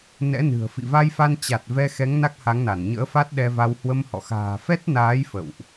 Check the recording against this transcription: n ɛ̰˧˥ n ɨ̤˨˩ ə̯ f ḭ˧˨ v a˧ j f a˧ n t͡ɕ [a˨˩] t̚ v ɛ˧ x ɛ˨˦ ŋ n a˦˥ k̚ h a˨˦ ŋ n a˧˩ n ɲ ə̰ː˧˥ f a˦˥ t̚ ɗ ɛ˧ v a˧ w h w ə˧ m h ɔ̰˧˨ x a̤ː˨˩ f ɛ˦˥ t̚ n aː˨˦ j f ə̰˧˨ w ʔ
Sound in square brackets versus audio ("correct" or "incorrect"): correct